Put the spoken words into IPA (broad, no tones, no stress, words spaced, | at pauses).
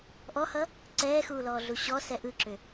ʔɔhʌ | ǀɛːxuːlɔːɮu ɕɔsɛ ʔɯǁʏ